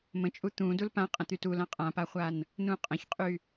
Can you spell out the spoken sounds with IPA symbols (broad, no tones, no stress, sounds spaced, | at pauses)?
m ə̃ t͡ʃʼ u t̪ ũ d u l p ã qʼ ə̃ t̪ y t u l ã qʼ ã p a χʷ a n | n ũ qʼ ə̃ ç qʼ y